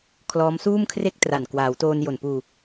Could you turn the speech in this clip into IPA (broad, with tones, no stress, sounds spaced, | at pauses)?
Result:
kʰ l ɔː˦˥ m s uː˥˩ m kʰ r e˥˩ k̚ t r a˨˩ n k w aː˩˦ w t oː˧ n j o˨˩ n p uː˧